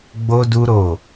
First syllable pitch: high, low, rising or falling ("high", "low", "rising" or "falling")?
high